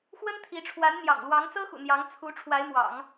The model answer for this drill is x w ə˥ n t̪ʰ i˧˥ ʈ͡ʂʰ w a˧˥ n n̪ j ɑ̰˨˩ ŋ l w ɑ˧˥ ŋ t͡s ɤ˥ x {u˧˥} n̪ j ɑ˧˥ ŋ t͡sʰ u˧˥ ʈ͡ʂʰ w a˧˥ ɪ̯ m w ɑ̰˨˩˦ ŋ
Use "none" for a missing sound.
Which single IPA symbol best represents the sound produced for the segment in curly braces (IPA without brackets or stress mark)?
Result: ṵ˨˩